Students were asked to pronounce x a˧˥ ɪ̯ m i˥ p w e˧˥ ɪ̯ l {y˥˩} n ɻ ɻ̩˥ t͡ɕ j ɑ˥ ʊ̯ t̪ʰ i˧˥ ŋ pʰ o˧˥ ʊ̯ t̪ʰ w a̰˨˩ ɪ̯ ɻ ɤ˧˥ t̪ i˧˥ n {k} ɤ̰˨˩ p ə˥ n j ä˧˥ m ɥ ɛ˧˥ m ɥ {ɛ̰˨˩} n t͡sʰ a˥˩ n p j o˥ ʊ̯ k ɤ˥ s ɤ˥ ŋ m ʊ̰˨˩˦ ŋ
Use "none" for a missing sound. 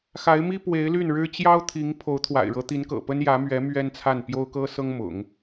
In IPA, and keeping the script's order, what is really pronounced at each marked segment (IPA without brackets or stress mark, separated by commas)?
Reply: y˥˩, k, ɛ˥